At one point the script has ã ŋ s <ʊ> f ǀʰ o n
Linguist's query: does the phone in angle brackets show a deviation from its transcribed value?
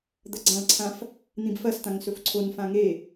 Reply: yes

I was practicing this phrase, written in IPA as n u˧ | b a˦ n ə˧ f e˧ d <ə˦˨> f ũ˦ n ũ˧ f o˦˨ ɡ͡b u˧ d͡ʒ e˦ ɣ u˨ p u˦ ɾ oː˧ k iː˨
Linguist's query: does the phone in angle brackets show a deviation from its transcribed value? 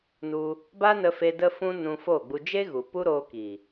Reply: yes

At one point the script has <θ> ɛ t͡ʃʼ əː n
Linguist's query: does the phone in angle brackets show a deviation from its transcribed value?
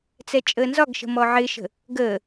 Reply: yes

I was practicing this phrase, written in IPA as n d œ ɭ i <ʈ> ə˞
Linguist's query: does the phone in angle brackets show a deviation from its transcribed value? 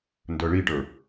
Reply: no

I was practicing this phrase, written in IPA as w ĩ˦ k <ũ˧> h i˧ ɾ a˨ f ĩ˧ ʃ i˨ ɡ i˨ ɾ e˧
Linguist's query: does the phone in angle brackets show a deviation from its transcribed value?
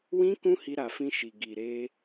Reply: yes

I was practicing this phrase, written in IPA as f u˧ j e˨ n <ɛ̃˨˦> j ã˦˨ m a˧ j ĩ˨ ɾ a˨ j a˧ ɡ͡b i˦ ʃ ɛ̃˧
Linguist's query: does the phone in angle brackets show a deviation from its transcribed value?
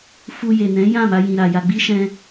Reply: no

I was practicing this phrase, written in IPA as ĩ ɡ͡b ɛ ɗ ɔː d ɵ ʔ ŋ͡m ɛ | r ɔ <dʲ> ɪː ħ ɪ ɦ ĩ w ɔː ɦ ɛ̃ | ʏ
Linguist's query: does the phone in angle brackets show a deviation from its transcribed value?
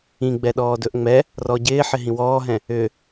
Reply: yes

